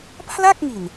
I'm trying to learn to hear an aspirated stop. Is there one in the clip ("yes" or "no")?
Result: yes